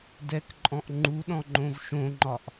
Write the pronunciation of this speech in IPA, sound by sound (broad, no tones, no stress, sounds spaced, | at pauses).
d ɛ k ǃʼ ɔ̃ ʔ ŋ͡ǃ u ɗ ɔ̃ ŋ͡ǃ õ v ʃ õ ŋ͡ǃ ɒ ʔ